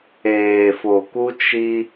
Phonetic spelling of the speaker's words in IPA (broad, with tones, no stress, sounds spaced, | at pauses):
eː˨ f o˨ k u˦ t͡ʃ i˦